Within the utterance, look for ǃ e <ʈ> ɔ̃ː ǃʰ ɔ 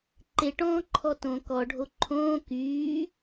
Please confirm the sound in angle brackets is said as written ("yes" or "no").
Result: yes